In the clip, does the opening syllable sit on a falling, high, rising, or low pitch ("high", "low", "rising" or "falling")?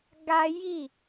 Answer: high